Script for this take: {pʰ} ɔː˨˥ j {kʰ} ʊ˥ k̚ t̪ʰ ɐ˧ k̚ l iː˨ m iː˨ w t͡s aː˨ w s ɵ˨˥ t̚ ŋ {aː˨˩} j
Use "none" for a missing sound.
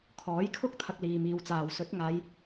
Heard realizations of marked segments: kʰ, kʰ, aː˨˧

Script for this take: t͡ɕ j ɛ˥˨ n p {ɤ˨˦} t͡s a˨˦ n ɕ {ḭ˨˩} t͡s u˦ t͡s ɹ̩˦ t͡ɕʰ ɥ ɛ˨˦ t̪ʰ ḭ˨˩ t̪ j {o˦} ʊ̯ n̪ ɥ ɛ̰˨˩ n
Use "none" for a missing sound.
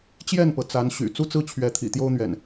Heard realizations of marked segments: ɤ˩, y̰˨˩, o˦

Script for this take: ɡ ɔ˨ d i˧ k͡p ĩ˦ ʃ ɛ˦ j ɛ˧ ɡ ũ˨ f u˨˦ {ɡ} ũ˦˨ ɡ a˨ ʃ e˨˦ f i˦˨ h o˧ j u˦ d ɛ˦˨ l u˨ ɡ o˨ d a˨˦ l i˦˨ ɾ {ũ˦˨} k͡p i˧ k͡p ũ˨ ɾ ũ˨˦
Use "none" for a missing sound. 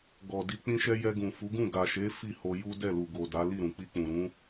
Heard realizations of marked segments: ɡ, ũ˨

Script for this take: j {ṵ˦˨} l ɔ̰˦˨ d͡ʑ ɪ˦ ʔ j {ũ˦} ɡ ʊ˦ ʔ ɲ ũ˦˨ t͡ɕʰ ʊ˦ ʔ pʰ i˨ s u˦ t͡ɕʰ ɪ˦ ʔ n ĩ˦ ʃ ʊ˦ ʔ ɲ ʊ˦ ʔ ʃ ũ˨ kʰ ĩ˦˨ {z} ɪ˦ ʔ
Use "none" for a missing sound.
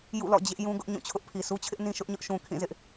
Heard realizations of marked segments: ṵ˦˨, ũ˦, z

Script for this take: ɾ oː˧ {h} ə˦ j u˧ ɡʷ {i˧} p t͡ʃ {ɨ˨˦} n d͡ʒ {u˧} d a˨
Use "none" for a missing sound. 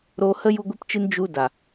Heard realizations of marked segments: h, i˧, ɨ˧, u˧

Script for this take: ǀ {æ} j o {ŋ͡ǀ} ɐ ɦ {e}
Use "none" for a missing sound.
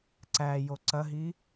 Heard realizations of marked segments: æ, ǀ, i

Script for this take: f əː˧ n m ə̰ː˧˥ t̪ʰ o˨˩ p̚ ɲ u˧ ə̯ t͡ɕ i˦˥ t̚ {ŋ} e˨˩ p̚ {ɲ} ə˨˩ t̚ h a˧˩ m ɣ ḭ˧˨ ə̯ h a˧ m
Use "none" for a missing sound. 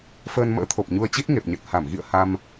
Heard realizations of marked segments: ŋ, ɲ

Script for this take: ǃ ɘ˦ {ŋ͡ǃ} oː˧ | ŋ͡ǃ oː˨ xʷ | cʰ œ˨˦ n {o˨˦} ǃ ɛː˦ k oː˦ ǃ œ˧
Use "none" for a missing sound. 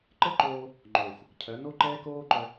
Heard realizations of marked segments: ǃ, o˦

